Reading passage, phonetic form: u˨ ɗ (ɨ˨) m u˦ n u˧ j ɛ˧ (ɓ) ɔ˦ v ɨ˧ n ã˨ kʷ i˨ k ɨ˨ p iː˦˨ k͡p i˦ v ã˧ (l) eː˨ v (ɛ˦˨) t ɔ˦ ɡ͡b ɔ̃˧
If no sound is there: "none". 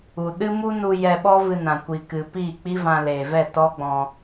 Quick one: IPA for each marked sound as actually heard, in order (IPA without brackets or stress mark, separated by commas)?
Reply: ɨ˦, ɓ, l, ɛ˦˨